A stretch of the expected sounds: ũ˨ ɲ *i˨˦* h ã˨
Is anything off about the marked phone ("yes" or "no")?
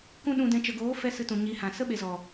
no